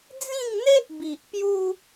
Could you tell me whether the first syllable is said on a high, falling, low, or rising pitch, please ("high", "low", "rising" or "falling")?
falling